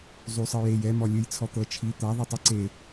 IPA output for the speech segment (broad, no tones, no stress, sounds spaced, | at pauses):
zˤ u sˤ ɯ j e j ɛ m ɔ lʲ ɯ j t͡sʰ ɔ t̪ ɤ t͡ʃʰ i t̪ a ðˤ ɯ tˤ ɛ ǀ e